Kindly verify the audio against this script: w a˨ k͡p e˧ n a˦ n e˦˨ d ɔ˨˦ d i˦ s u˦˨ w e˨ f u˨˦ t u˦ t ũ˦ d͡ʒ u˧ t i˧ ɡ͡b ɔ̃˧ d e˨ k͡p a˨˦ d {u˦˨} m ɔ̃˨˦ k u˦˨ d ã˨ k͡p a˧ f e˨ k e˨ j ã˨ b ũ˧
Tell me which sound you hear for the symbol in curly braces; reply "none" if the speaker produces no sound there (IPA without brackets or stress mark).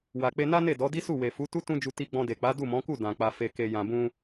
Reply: u˦˨